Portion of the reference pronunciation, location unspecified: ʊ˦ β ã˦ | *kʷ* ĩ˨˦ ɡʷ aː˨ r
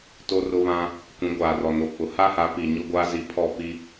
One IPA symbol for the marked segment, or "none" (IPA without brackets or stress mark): kʷ